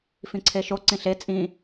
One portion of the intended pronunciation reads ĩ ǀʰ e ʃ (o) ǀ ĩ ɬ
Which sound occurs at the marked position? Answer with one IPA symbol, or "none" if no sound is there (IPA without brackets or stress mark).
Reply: o